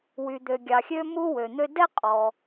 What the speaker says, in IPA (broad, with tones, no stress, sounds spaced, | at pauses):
w y˩ d̪ ø˩ ɡʲ ɑ˩ xʲ ø˥ m u˥ w ø˩ n̪ ø˥ d ɛ˥ qʼ ɔ˩